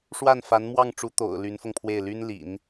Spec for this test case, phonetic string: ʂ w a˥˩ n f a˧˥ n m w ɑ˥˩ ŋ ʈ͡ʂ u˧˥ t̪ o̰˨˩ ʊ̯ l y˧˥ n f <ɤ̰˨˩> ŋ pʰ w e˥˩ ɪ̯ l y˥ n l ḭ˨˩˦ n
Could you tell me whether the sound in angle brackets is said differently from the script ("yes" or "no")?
yes